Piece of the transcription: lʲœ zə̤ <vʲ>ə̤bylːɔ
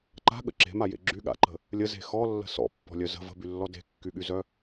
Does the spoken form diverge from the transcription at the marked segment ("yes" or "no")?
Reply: yes